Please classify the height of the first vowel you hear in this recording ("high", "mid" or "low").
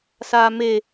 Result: low